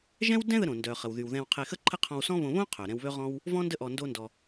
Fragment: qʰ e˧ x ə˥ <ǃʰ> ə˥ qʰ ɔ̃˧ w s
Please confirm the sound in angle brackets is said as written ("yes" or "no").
yes